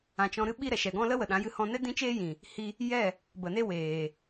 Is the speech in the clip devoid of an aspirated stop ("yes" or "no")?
yes